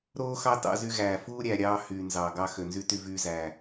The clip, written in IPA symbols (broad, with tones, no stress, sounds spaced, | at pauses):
ɾ oː˦ x ɑ˦ t ɑ̰˦ z y˦ ɣ æː˨ f uː˦ ɾʲ æ˨ ɾʲ ɑː˦ h yː˨ n z ɑː˨ ɡ ɑ˦ x ø˨ n z y˦ t y˦ v yː˦ z æ˨